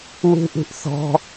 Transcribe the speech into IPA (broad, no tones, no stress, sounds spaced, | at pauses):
w ṳ ʔ ṳ ʔ θ ɔ̤